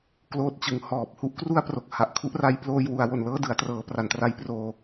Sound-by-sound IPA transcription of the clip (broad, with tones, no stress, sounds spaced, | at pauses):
k l oː˦˥ t̚ t͡ɕ ɯ˩˦ ŋ h ɔː˨˩ p̚ h u˦˥ ʔ k r u˥˩ a̯ p r o˨˩ k̚ h a˨˩ ʔ kʰ u˥˩ ʔ r a˦˥ j p l oː˧ j w u˩˦ a̯ w o˨˩ n l ɤː˥˩ d ɯ˩˦ a̯ t r ɤː˩˦ p r a˩˦ n t r a˧ j p r oː˧